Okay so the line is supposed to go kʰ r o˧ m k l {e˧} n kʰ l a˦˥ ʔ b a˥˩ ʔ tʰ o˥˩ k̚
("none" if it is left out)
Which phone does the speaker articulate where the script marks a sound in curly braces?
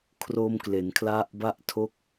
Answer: e˩˦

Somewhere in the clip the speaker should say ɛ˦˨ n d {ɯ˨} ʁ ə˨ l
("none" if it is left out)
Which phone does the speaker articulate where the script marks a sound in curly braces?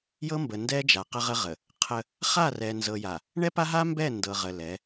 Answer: ɤ˨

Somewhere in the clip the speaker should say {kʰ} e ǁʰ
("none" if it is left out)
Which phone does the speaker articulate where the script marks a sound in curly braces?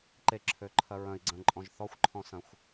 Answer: ǃ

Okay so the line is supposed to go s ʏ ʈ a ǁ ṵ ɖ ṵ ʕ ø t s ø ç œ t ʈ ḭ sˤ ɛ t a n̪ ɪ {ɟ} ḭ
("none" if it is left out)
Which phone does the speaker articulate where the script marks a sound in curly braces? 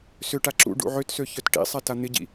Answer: ɟ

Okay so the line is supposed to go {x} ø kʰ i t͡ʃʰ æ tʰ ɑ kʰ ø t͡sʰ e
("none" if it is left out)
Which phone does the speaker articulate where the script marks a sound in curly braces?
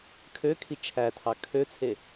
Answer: kʰ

